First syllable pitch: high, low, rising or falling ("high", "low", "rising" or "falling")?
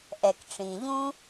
low